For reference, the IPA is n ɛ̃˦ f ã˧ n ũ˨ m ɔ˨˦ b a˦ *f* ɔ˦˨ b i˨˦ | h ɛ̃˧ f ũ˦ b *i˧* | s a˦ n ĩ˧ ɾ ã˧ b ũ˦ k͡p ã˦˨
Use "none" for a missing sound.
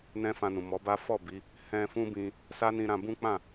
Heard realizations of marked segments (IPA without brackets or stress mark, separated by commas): f, ĩ˧